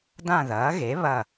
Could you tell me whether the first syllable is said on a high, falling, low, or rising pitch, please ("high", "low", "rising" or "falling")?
falling